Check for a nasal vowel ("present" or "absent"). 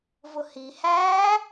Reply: absent